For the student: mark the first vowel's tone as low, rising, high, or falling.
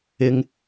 low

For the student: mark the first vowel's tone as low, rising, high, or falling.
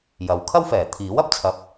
low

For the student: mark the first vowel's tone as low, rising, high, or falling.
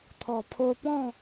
low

